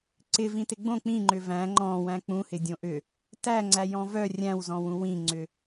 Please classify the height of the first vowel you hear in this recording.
high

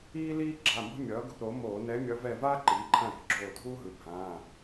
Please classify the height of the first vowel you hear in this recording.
high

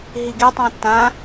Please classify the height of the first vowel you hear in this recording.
high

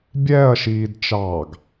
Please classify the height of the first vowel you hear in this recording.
mid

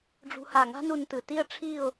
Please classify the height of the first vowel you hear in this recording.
high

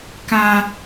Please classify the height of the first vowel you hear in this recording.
low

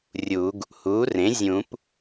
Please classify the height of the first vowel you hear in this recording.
high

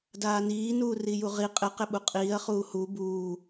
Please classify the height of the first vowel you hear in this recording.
low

